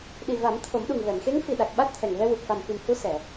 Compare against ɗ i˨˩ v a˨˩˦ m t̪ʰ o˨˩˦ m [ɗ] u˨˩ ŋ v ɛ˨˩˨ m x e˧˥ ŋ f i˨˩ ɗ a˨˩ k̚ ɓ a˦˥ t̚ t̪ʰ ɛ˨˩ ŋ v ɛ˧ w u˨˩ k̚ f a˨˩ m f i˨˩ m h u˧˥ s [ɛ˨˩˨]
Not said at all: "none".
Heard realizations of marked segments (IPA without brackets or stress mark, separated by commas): ɗ, ɛ˨˩˨